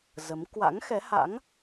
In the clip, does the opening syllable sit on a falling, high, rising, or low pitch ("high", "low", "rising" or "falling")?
rising